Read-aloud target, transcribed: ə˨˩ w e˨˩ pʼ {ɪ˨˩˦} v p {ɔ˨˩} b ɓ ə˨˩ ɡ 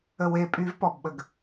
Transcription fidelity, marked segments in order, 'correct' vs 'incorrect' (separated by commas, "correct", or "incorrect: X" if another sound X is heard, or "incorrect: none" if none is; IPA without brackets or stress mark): incorrect: y˨˩˦, correct